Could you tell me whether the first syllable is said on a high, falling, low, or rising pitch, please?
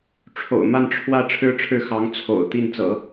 low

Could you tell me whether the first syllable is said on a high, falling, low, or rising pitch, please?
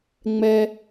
low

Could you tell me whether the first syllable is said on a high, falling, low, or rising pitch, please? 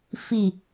low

